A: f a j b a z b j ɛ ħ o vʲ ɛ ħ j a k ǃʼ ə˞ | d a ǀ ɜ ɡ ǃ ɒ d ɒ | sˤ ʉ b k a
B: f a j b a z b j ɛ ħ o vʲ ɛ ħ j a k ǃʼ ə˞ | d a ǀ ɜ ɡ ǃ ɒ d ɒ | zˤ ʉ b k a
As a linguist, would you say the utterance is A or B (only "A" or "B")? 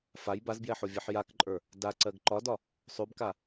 A